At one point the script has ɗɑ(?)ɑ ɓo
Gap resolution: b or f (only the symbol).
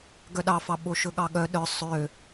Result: f